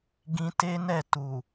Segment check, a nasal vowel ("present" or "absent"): present